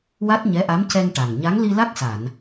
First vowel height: low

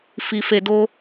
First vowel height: high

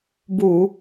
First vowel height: high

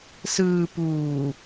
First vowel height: high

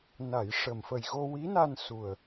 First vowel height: low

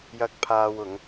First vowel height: low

